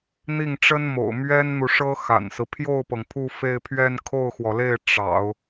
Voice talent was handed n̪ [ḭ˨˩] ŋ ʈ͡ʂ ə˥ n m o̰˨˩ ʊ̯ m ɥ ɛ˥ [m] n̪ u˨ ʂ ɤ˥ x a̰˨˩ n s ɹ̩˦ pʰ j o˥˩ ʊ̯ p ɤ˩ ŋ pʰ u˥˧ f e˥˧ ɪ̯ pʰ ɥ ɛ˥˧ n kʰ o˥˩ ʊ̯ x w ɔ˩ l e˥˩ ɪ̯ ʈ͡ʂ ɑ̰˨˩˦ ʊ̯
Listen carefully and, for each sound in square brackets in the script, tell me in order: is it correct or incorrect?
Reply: incorrect: i˥˩, incorrect: n

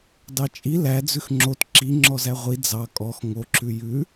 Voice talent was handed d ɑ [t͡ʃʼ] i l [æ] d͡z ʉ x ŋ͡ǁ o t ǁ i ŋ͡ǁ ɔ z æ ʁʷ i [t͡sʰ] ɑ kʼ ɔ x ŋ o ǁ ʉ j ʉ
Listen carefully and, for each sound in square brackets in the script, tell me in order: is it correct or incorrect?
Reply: correct, correct, incorrect: d͡z

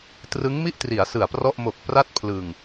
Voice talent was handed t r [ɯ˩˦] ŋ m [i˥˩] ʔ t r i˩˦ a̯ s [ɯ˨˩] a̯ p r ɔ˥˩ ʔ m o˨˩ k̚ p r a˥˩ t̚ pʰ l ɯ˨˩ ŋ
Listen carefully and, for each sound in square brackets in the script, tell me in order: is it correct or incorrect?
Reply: incorrect: ɯ˦˥, correct, correct

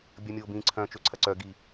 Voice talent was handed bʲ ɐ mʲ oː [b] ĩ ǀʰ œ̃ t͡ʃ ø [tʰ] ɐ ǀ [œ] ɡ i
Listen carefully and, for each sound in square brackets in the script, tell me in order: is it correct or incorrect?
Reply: correct, incorrect: ǀʰ, correct

